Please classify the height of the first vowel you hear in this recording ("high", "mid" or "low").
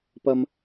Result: low